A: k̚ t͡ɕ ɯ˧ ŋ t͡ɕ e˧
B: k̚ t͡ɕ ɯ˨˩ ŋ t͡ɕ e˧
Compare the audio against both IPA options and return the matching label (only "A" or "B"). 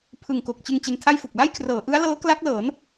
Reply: A